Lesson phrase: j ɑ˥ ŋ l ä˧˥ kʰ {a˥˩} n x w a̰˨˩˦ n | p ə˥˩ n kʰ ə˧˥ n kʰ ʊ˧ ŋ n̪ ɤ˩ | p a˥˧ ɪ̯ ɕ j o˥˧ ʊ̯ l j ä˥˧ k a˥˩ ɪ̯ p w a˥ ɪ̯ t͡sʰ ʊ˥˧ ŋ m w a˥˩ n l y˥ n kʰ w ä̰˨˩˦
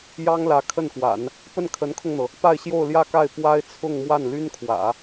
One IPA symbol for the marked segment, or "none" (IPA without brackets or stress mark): ə˥˩